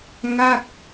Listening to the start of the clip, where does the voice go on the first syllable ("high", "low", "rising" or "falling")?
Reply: falling